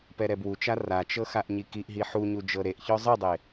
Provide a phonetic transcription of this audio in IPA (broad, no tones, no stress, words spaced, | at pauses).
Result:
pɛɾɛbwut͡ʃa rat͡ʃɤ xaʔɲikiʔɦi ħuɲu d͡ʒɤɾeʔçɔ zˤɯdˤe